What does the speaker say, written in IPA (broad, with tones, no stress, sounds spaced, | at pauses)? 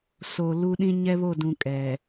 s o˨ l u˦ ɗ ĩ˦ ɲ ɛ˦ β o˦˨ d ũ˨ kʼ ɛ˨